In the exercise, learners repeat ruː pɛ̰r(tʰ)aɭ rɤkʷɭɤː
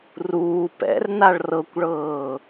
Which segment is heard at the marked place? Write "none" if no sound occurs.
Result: n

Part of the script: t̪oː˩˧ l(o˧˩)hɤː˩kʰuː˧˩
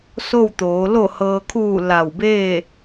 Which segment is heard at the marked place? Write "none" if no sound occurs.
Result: o˧˩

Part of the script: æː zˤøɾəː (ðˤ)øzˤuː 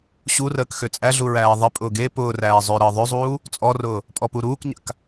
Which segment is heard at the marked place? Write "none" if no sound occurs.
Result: ðˤ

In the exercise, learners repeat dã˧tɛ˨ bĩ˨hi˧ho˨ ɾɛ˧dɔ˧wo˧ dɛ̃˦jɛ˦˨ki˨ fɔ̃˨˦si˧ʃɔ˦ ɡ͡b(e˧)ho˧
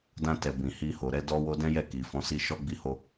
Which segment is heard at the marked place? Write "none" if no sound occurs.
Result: i˧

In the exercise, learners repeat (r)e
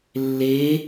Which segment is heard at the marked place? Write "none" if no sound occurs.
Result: lː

